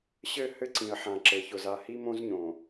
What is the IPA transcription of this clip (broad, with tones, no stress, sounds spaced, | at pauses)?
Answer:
ɕ ɘ˦˨ h ɘ˦ ǀ ĩ˨ ə̯ ħ ã˨ ǁ ɘ˨ ç ʊ˨ z a˨ h i˦ m õ˦ z ɲ õ˨